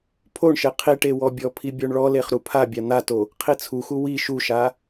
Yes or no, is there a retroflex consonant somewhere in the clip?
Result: yes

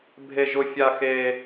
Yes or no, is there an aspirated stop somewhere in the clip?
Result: no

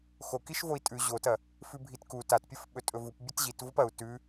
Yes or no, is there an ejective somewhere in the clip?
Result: yes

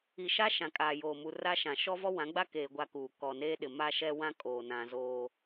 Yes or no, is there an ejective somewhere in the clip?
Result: yes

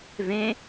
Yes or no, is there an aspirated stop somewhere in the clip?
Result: no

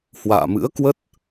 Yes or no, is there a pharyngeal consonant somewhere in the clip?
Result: no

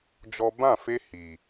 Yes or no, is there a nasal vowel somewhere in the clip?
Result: yes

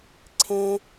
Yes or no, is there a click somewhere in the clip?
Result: yes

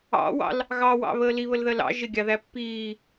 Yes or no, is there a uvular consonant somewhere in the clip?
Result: no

